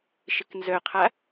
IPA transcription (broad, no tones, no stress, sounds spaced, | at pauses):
ʃ ɪ k n z œ qʰ a